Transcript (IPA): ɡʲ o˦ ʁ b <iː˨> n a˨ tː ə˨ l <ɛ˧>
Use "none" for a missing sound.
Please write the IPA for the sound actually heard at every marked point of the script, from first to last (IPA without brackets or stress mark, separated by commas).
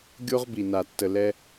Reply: i˨, ɛ˧